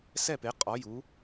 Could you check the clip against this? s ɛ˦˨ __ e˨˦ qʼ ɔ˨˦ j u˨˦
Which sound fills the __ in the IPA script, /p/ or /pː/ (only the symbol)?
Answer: p